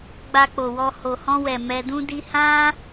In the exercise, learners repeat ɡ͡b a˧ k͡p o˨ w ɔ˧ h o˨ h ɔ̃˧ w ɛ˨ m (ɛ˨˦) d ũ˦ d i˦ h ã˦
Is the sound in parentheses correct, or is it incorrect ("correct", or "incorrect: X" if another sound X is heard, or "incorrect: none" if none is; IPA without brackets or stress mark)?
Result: incorrect: ɛ˧